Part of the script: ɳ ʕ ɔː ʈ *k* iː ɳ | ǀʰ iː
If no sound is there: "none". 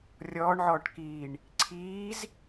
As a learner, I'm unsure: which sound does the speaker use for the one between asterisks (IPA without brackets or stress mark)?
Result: k